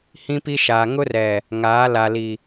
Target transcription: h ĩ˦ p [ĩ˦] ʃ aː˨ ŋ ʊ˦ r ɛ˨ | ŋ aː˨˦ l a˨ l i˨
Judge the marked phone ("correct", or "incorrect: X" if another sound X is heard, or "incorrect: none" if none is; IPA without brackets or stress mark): incorrect: i˦